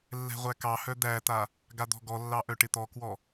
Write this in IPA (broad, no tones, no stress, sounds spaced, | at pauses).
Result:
lː ɛ̤ ʁʷ æ k ɑ h œ d̪ æ t̪ a | ɡ a d̪ ɔ̤ ɡ ɔ lː ɑ ʔ œ ʈ ɪ t̪ ɔ k w ɔ